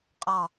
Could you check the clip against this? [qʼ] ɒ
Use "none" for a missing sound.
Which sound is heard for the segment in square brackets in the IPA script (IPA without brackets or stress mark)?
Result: qʼ